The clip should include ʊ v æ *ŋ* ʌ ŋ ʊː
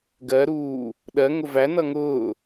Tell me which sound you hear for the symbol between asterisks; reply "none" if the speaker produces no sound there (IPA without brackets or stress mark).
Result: n